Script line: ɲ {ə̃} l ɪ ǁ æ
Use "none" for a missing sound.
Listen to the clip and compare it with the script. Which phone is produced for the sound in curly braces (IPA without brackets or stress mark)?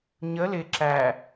ə